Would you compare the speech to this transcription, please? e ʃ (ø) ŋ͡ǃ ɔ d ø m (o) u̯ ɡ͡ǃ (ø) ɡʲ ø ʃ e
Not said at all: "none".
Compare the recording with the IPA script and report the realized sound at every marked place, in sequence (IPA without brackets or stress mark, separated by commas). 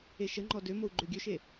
ə, o, ø